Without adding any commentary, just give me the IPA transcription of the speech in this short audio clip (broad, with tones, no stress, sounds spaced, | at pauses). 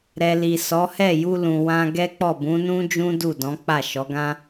ɾ ɛ˨ l i˨ s ɔ˨˦ h ɛ˦˨ j u˧ l ũ˨ w ã˧ ɡ ɛ˦ k͡p ɔ˦˨ b ũ˨˦ n ũ˦ d͡ʒ ũ˦ d u˦˨ d ɔ̃˨˦ k͡p a˦˨ ʃ ɔ˨˦ ɡ ã˦